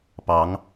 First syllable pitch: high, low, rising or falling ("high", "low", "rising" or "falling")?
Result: rising